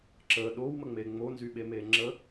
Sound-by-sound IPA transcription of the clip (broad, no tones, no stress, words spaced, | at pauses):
ǁə ɗowməŋ͡me ŋ͡monzyɓeme ŋ͡ǁə